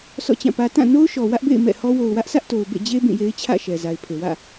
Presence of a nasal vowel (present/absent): present